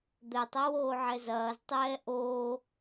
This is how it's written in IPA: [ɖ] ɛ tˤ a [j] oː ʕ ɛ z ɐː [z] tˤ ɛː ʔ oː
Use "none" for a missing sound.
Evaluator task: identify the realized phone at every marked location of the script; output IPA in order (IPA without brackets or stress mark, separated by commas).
d̪, w, z